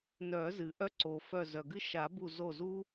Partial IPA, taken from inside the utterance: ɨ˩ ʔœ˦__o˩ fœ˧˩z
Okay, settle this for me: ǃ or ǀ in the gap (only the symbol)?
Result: ǀ